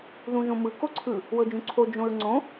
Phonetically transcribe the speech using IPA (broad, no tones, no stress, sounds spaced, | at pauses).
ð ũ ʒ õ m ɯ k o ǀʰ ɯ | w ɤ d͡ʒ ũ ǀʰ o d͡ʒ õ ɹ ŋ͡ǀ õ